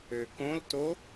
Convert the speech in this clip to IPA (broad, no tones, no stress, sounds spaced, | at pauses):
ø k õ l t o